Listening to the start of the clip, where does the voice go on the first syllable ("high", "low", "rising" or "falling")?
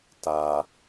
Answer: low